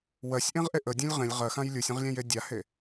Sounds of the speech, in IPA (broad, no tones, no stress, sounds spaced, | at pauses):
w ɜ sʲ ʔ ẽ ʁ ʔ e ʔ ə dʲ ɛ̃ lʲ ʁ ẽ lʲ ʁ ɜ x ã j lʲ u sʲ ə̃ ʁ lʲ ɛ̃ j e dʲ a h e